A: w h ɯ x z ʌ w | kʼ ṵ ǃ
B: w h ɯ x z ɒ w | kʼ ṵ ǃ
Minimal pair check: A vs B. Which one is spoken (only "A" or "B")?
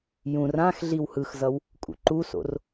A